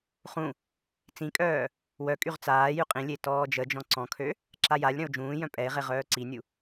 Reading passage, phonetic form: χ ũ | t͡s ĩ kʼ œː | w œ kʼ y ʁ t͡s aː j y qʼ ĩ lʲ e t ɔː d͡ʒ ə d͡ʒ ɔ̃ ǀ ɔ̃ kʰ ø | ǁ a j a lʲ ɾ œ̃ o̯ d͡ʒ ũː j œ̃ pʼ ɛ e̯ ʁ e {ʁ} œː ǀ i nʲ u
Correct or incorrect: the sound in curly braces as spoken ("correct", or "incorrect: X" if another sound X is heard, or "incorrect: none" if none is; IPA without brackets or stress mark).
correct